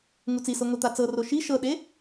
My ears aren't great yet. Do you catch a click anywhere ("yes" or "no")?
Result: no